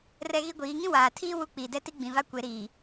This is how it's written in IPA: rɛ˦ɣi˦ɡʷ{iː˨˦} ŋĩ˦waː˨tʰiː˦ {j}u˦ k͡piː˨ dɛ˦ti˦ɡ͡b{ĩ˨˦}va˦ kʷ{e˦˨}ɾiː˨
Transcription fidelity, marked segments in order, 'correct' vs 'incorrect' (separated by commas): correct, incorrect, incorrect, incorrect